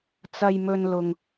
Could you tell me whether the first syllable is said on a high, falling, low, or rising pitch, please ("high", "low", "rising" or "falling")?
low